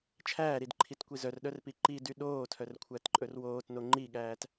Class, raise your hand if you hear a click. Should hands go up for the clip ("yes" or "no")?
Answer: yes